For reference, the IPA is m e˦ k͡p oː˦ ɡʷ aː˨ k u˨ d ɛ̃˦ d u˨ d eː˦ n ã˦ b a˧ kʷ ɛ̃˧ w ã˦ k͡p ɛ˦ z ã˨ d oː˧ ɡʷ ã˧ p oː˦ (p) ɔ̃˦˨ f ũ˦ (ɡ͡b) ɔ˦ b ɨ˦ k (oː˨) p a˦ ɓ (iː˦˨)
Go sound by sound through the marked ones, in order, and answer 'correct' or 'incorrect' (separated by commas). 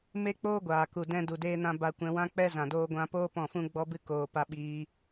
correct, correct, correct, incorrect